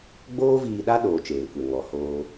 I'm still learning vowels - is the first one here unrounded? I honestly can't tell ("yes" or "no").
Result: no